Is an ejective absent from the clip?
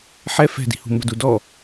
yes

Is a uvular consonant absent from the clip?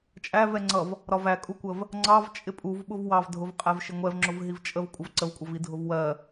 no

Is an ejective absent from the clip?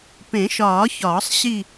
yes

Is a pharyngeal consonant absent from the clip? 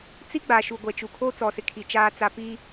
yes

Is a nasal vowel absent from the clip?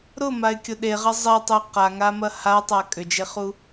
yes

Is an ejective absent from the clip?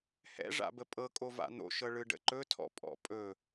no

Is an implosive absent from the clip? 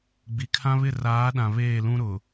no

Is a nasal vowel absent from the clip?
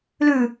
yes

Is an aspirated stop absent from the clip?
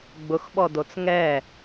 yes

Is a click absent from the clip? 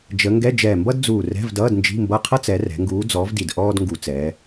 yes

